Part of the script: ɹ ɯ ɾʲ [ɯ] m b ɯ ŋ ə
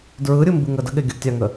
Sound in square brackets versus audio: correct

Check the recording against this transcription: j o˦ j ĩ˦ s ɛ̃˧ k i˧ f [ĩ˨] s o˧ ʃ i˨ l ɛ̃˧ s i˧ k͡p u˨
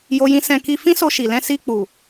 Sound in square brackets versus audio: incorrect: ĩ˦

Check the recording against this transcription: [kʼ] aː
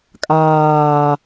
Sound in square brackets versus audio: correct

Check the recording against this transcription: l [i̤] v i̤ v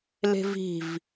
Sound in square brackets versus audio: incorrect: e̤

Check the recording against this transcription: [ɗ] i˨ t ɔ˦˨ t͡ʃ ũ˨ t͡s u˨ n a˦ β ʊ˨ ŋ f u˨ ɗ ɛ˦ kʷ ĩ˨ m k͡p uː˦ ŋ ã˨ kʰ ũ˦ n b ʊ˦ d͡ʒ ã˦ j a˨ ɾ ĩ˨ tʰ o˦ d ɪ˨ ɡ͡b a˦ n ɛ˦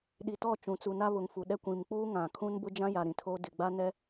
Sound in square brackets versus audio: correct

